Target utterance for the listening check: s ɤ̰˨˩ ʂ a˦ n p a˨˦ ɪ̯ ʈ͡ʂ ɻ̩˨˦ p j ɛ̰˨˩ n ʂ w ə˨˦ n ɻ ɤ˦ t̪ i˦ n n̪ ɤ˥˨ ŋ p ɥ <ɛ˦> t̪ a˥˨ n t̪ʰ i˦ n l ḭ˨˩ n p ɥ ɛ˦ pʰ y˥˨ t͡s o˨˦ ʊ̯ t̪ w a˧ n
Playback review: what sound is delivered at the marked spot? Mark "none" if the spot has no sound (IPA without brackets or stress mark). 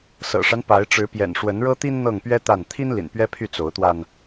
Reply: ɛ˦